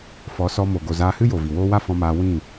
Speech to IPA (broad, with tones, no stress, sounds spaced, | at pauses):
f ɔ˨˦ s ɔ˧ m o˨ ɡ o˨ z aː˧ h ɨ˦ j o˨ v i˨ w oː˦ w a˦ f ɔ̃˧ m aː˧ w ĩ˦˨